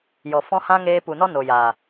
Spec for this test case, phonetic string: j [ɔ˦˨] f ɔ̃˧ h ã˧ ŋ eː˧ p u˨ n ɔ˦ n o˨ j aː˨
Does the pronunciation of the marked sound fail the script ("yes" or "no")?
yes